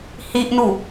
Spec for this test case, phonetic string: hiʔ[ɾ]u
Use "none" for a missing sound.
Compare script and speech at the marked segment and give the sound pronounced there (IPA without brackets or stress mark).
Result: n